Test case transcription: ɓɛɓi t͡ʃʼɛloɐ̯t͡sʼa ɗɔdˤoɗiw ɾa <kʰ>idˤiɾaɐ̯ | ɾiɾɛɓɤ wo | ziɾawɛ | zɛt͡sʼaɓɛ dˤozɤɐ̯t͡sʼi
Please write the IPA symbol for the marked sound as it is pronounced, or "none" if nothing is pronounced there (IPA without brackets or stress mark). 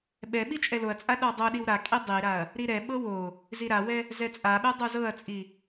kʼ